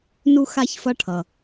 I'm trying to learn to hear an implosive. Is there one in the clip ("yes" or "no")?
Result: no